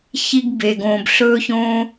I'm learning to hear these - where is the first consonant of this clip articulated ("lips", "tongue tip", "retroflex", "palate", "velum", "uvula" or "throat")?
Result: palate